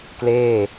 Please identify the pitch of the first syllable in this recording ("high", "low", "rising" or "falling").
falling